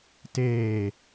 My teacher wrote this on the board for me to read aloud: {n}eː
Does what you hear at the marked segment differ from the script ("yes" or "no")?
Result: yes